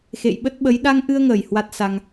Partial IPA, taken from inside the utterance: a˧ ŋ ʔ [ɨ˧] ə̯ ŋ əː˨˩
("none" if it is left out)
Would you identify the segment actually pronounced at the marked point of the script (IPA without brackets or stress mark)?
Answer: ɨ˧